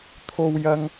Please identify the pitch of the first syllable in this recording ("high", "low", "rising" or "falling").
high